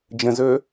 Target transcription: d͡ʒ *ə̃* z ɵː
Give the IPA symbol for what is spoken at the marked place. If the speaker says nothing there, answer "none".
ə̃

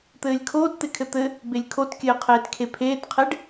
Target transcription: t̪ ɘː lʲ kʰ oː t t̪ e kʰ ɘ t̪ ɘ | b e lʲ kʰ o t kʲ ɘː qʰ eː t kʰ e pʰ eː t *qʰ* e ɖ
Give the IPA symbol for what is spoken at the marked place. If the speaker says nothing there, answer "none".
qʰ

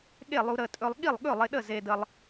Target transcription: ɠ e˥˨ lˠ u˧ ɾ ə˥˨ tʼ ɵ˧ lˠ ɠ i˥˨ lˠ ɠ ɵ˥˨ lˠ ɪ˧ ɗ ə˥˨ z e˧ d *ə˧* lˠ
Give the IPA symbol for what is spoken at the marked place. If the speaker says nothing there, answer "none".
ə˧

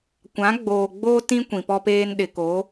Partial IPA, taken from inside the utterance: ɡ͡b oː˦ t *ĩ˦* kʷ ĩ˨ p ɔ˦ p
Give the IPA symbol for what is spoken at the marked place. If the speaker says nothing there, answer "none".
ĩ˦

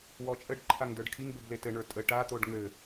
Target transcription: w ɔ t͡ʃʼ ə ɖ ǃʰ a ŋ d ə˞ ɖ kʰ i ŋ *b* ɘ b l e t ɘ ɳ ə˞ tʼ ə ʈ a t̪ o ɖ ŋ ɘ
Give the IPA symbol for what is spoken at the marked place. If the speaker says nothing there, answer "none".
b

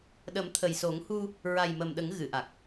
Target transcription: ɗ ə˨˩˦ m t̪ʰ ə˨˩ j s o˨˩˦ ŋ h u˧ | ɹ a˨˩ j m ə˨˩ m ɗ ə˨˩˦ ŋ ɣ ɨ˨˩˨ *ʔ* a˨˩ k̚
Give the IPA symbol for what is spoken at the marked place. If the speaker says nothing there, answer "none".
ʔ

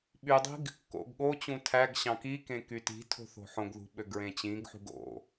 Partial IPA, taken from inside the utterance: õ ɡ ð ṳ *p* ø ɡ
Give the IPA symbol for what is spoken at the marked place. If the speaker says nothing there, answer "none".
ɓ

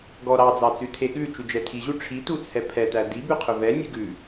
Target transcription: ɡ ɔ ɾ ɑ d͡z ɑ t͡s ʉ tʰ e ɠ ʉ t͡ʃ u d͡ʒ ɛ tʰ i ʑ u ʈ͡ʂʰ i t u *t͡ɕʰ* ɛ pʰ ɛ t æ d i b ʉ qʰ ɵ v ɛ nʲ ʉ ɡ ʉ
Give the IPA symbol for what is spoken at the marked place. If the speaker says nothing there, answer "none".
t͡sʰ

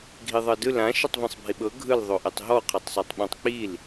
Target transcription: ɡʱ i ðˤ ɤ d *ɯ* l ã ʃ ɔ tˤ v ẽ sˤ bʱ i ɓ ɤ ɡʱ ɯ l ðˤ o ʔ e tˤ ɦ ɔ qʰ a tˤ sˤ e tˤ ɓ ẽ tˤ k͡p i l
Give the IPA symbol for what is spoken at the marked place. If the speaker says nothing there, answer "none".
ɯ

